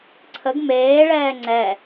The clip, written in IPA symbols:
ǀʰ ə ɡ m eː ɭ ɛː ŋ͡ǀ ɛ

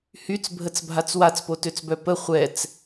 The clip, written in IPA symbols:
h y t͡s bʱ ə t͡s bʱ a t͡s w a t͡s p o t ø t͡s b œ p ə χʷ ɛ t͡s

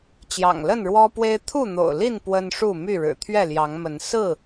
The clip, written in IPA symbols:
t͡ɕ j ɑ̰˨˩ ŋ l ə˥˨ n ɻ w ɔ˦ p w e˦ ɪ̯ t̪ʰ u˥˨ n̪ o̰˨˩ ʊ̯ l i˥˨ n p w ə˦ n ʂ u˥˨ m y˥˨ ɻ ɻ̩˨˩ t̪ʰ ɥ ɛ˥˨ l j ɑ˨˦ ŋ m ə˨˦ n s ɹ̩˥˨

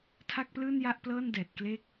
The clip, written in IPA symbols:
tʰ a˥˩ k̚ p l ɯː˥˩ n j a˥˩ ʔ p l ɤː˥˩ n d ɛː˨˩ t̚ k l eː˥˩ k̚

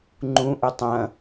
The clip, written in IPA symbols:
ŋ͡ǃ ũ ʔ ʉ tˤ ɐ̃

